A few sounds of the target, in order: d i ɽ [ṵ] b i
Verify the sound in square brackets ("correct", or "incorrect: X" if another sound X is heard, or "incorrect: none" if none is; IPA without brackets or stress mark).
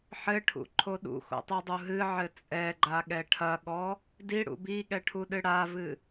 correct